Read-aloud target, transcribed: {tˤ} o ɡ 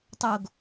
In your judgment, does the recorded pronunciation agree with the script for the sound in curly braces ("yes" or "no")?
yes